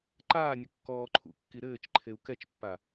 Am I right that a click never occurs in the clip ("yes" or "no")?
no